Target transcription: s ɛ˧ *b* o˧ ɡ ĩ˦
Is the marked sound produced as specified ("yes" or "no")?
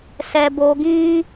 yes